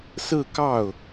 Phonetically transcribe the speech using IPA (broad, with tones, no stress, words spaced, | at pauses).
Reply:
sɹ̩˥˧kɑ˥˩ʊ̯